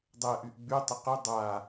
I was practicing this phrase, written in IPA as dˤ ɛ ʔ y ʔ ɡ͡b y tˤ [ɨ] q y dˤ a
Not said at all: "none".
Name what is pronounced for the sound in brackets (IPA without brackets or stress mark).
ə